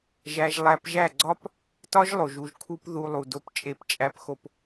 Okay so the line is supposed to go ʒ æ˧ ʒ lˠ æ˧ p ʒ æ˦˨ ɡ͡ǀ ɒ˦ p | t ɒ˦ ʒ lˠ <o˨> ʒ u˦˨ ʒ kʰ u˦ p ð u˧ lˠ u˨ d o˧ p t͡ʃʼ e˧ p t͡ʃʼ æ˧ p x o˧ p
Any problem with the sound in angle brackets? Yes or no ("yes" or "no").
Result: no